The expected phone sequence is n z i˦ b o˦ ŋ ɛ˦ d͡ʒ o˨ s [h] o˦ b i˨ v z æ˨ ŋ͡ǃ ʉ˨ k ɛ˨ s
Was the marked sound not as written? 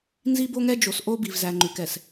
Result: yes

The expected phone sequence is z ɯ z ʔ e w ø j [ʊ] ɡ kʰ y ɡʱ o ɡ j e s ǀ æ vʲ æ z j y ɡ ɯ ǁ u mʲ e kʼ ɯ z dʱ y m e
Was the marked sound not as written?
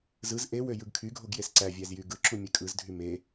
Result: yes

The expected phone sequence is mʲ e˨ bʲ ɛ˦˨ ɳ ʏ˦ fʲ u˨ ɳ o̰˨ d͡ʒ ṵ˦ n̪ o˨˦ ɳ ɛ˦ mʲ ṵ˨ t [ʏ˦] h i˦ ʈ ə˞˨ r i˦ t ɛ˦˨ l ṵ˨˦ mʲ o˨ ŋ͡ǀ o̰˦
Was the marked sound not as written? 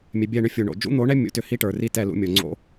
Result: no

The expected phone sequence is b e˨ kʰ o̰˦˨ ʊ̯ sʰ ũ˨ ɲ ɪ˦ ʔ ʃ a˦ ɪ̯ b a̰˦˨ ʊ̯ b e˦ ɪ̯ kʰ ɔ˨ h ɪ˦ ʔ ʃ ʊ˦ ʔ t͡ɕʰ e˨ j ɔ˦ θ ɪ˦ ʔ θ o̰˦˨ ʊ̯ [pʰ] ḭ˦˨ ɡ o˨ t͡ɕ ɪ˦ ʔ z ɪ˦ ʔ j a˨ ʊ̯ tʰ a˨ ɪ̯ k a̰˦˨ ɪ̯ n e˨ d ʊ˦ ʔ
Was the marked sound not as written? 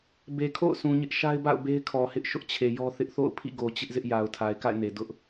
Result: no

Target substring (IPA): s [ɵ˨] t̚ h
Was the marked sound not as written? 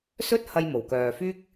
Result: yes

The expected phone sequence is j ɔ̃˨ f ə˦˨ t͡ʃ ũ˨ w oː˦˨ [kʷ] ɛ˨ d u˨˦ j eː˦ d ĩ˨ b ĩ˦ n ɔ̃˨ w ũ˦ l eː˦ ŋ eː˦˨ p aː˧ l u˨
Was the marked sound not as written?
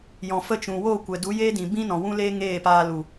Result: no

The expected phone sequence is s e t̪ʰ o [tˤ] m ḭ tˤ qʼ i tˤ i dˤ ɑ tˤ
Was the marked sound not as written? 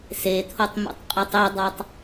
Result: no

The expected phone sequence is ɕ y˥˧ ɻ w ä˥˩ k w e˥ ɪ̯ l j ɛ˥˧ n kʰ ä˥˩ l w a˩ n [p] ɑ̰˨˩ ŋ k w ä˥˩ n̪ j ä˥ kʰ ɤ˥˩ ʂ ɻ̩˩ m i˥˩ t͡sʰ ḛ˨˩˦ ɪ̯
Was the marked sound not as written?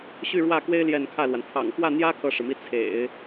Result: yes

